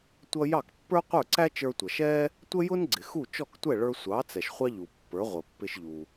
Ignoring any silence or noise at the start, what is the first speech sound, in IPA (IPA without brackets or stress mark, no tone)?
tʷ